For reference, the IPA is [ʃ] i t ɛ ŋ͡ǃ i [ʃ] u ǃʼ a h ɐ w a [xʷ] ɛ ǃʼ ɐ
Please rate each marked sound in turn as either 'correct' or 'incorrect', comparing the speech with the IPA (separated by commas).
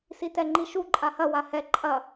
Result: incorrect, correct, incorrect